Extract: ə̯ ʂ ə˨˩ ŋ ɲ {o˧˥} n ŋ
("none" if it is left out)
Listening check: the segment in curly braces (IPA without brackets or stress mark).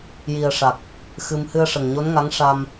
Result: o˧˥